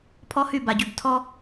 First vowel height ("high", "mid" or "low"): mid